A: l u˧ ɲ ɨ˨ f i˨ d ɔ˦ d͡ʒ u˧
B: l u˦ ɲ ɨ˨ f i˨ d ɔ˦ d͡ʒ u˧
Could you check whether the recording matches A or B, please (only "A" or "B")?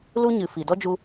B